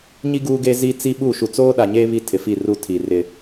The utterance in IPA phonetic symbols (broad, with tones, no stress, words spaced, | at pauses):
ɲi˦ ɡuː˦ɡe˦zi˦ t͡si˦ɓu˦˨ ʃu˨t͡soː˦ɗa˨ɲeː˦ βi˦tʰɪ˨fi˦˨ru˦˨ tʰi˨rɪ˦